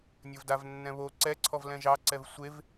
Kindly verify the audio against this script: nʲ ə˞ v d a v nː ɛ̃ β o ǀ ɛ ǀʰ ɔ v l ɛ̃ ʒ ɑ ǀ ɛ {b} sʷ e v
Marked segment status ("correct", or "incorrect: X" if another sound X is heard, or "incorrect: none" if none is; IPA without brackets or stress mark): incorrect: v